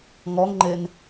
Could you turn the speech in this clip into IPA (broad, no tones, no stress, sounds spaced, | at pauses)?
ŋ ɔ ŋ ŋ͡ǃ e n